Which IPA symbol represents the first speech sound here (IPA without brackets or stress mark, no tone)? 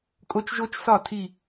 kʼ